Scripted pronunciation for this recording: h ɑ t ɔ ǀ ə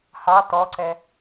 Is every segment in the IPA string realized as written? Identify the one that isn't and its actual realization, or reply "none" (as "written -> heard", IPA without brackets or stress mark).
ə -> ɛ